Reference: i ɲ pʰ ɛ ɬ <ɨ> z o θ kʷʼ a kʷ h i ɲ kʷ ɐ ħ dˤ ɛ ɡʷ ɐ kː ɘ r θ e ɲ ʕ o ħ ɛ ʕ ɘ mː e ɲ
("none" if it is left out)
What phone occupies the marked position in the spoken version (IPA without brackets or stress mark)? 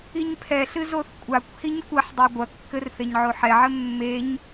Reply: ɨ